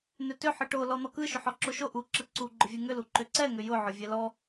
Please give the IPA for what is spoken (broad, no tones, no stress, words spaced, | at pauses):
nʏtʏ ħɯʈo lɔn̪ɔkɯ ʃʏħɔǁoʃo ʔu ǁɯǀu ɡ͡ǃʊvʲɯŋʏ luǃʏǀɛ ŋʏjʊ ʕʊvʲɛlɔ